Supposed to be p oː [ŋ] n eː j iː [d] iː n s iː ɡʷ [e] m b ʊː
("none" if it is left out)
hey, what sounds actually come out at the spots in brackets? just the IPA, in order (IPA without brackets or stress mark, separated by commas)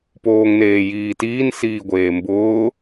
ŋ, t, eː